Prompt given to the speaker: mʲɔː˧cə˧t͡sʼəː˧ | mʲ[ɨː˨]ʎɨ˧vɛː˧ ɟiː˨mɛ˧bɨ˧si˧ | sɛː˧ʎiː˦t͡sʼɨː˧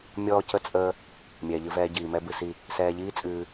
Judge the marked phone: incorrect: ɛː˨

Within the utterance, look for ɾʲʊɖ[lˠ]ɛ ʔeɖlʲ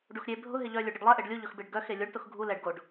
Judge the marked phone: correct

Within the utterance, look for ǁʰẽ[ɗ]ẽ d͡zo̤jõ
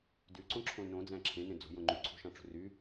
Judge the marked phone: incorrect: n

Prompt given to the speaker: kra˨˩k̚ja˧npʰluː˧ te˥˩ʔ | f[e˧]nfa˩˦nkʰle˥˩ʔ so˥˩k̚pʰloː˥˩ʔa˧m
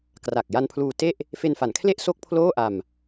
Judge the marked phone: correct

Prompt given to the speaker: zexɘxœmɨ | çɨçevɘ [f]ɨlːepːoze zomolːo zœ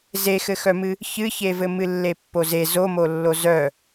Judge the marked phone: incorrect: m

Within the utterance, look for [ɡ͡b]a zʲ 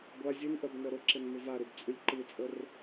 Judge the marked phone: incorrect: ɡʷ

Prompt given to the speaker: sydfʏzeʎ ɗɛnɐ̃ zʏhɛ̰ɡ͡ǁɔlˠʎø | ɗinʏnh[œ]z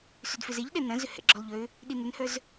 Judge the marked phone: correct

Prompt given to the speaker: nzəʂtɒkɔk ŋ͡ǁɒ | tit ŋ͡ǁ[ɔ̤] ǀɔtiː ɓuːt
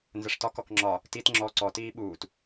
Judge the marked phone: incorrect: ɔ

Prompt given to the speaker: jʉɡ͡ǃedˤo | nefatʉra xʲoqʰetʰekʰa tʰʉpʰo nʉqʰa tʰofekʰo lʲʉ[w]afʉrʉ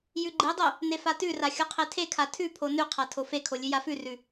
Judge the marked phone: incorrect: j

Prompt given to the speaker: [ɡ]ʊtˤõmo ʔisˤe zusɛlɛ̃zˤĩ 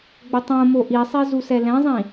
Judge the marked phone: incorrect: ɡ͡b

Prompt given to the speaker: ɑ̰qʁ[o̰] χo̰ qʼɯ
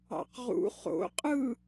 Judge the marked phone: incorrect: ṵ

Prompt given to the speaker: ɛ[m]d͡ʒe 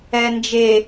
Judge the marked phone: incorrect: n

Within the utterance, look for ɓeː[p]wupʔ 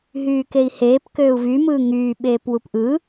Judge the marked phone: correct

